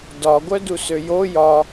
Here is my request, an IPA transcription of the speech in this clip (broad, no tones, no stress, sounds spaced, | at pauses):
d ɒ ɡʷ œ d u s ø j o j ɒ